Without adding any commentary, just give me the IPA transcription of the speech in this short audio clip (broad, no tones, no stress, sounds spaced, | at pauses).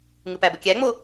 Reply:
ŋ ɯ p æ b ə kʲ æ ŋ͡m o